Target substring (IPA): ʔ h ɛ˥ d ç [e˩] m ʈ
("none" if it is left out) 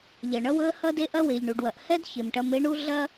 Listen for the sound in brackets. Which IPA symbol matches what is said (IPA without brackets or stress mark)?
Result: e˩